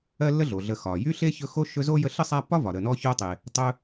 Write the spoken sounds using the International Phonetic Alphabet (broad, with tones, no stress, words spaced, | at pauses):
ɜ˥lːə˥ɮo˩ɮə˨ xɒ˩ jy˥ɬe˥ çɵ˦xo˥ ʃɵ˦zo˥jə˦ɬə˥ sˤa˦pːɒ˥vɒ˩ ɾə˨nɔ˦ço˦tˤe˨ | tˤɵ˦